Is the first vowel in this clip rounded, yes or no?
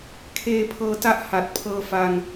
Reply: no